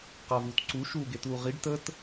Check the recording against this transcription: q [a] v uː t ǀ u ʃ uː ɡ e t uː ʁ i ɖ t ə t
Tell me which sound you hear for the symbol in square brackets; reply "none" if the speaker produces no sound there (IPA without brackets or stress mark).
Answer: a